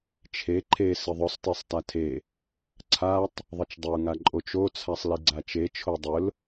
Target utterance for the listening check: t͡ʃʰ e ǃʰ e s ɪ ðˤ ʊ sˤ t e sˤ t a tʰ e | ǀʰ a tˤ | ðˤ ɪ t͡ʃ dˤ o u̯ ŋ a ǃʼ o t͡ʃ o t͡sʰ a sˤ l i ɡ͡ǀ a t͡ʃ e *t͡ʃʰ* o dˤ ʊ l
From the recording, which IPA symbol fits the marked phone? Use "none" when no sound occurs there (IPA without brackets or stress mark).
t͡ʃʰ